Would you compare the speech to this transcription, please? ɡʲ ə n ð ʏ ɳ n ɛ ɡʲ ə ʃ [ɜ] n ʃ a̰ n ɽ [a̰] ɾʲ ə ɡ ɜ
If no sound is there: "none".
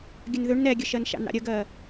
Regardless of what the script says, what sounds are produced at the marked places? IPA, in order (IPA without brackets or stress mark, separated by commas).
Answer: ɜ, a̰